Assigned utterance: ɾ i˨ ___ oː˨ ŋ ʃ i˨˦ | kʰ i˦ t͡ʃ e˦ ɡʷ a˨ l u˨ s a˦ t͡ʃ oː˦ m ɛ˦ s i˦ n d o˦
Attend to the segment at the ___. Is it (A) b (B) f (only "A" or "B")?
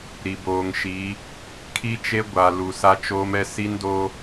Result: A